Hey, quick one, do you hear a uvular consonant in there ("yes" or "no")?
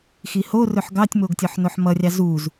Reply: no